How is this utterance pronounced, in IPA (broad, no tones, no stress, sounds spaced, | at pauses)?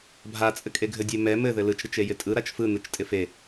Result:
bʱ a t͡sʼ ɘ kʼ e ɡʱ ɘ dʲ e m ɛ m ɘ ð ɘ l ɯ t͡ʃ ɾ ɪ t͡ʃ e j ɪ tʼ ɯ ɾ a t͡ʃ f ɯ n ɯ t͡ʃ tʼ ɪ f e